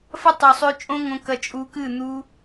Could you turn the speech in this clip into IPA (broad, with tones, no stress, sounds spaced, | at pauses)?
f ɐ˦ tˤ ʉ˨ sˤ ʉ˧ t͡ʃʼ õ˦ ŋ õ˧ k ɐ˧ t͡ʃʼ u˧ k ɨ˦˨ n̪ u˦